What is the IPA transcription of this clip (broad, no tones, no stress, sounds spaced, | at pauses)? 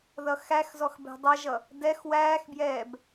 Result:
ð ʌ x æ x z ɔ x b ɛ̤ dˤ ʌ ʒ ʌ | d ɛ x w æː x b j ɛː b